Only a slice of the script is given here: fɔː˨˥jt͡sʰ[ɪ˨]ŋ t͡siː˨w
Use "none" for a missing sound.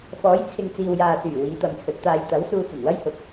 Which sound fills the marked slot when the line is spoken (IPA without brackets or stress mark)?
ɪ˨